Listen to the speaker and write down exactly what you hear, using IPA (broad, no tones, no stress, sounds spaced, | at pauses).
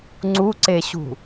ŋ͡ǀ u ǀ e ɕ ṳ